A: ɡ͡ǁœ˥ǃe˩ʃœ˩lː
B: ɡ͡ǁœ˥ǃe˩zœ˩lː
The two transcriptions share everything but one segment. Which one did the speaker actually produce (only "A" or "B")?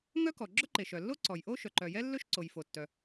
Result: A